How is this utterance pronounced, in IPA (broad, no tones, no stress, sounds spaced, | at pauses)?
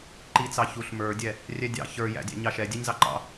ǃ i t͡s ɑ ç u ɬ m ə˞ dʲ ɛ | rʲ ɛ dʲ ɑ̰ ç ə˞ j æ̰ dʲ æ̰ ɲ ɑ ʃ ɛ dʲ ɛ ɲ z ɑ ǃ ɑ̰